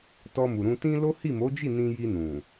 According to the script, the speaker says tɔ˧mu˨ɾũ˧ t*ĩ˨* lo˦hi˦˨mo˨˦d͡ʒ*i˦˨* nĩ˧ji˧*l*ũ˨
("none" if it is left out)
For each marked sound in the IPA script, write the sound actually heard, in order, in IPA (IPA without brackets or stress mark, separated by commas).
ĩ˧, i˦˨, n